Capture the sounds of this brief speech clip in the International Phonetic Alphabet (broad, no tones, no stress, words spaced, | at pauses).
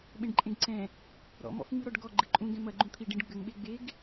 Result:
ɓẽɖǃʼẽɡǀɛ̃ | ɾɔ̰ mɔ̰fŋ͡mɨɾɔɖɡɔ ɡ͡ǃɨǃʼũ ɡɛ̃mɐ ɡ͡ǃũt̪ʰi ɖĩɖɡ͡bɘŋ ɓeɡ͡beɡ